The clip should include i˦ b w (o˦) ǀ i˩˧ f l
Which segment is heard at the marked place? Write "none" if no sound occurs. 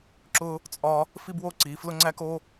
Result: o˦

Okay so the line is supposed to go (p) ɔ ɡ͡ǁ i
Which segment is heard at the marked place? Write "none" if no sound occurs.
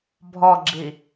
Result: bʱ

